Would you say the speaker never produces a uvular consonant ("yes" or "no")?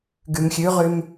no